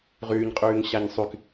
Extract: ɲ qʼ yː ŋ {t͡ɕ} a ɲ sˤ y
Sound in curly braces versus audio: incorrect: ɕ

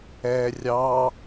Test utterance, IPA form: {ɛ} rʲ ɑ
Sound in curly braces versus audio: correct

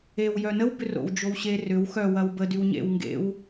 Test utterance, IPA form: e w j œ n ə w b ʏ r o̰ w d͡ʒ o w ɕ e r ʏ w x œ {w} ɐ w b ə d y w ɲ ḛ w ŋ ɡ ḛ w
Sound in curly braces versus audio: correct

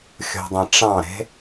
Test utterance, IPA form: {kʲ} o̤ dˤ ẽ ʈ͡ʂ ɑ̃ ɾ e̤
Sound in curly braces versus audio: incorrect: xʲ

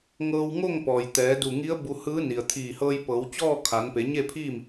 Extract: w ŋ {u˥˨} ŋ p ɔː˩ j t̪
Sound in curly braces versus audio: incorrect: o˥˨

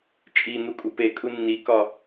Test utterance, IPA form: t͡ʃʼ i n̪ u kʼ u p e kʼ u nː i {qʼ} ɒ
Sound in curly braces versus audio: incorrect: k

